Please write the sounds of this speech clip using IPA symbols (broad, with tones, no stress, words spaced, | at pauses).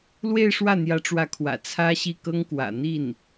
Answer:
lwe˥˧ɪ̯ʂwä˥˩n̪jä˧˥ʈ͡ʂwä˧˥ kʰwä̰˨˩t͡sʰä˥ɕi˥˩kɤ˥ŋ kwä̰˨˩n̪i˥˩n